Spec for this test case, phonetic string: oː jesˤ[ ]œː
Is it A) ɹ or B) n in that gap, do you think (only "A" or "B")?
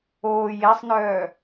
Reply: B